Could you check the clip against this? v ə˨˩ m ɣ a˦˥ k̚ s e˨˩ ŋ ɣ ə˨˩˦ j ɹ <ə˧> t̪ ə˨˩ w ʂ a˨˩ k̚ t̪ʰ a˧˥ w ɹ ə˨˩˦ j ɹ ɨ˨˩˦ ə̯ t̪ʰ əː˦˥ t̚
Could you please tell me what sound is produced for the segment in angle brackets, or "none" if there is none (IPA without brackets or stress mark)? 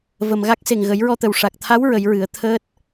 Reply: ɔ˧